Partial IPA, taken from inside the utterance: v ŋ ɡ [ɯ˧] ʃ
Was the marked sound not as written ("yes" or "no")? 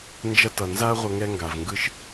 no